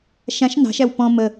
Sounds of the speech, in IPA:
ʃãʃ nɑ̤ʃæw pɔ̃ mə

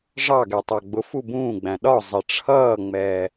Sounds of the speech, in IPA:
ʐɑɡɛ tˤɑɡ͡bʊfu bũːɡ͡bæ̃ ɗɒ zˤɪʈ͡ʂʰʌːŋ͡mɛː

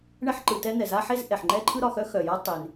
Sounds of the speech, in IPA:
ɳɛ˥ħǃɯ˩tɛ˥ n̪ɛ˩za˥ħe˥zʔɛ˩ħ ŋ͡ǃɛ˥ǃʰɯ˥ɾɒ˩ xœ˥xœ˩ja˥ tˤe˩n

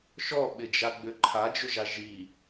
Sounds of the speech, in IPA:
ʃɔɓɪd͡ʒaɡ͡bʏ ǃʰad͡ʒʏʒa ʒi

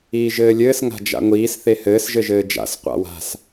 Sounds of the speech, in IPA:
iːʒɘːlʲɘːs ŋa̤d͡ʒa̰ŋʷiːs θehɘːs ʒɘʒɘːd͡ʒa̰s qʷa̰wa̤s

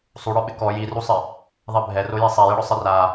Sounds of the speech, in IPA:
sˤuɽɔɓɪ kɔ jirusˤɪ | ðˤɛbʱɛroje sˤɛjɪɽʊ sˤɪra

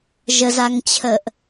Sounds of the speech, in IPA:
ʒəzaŋt͡ɕʰəʔ

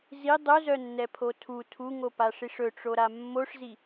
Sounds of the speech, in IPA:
zi dˤɵzœnːɛpʰo tʰu tʰuŋopaʂiʂ ɵʈ͡ʂoɾa mːoʂzi

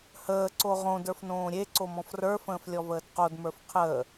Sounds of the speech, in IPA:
həː ǀoʁõd ə˞fnõːɾʲe ǀomɔ̃frə˞ fə̃ːflʲɔvəːdqod mə˞fqʰəː

